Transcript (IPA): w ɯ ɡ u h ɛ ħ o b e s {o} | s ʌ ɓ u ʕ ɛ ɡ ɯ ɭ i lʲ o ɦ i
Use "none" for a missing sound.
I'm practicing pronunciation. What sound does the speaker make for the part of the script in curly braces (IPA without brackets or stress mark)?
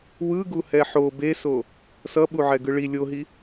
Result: o